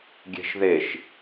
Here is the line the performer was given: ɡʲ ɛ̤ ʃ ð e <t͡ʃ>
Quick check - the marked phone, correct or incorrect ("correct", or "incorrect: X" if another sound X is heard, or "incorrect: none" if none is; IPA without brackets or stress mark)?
incorrect: ʃ